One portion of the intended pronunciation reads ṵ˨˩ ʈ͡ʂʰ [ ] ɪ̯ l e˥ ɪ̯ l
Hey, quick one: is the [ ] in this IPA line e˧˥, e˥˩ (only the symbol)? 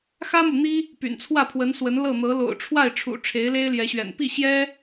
e˧˥